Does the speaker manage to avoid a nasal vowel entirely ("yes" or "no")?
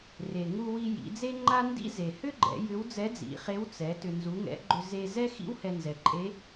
yes